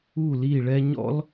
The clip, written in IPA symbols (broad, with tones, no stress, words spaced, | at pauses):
u˦˨li˦˨ɭɛ˦ ɲɔ̰˦l